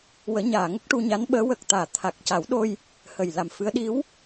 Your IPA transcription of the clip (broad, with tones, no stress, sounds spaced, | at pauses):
w əː˨˩˦ ɲ aː˨˩˨ ŋ ə˦˥ k̚ ʈ u˧ ɲ a˧˥ n ɓ əː˧˥ w ə˨˩ k̚ t̪ aː˨˩˨ t̪ʰ a˨˩ k̚ c a˨˩˦ w ɗ o˧ j | h ə˨˩ j l a˨˩ m f ɨ˧˥ ə̯ ɗ i˧˥ w